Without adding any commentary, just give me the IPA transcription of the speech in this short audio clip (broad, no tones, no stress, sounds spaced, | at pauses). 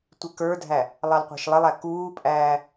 tʷ ɪ k ə˞ dʱ æ | lˠ ɑ l qʷ æ̤ ʃ lˠ ɪ lˠ æ k uː pʼ æː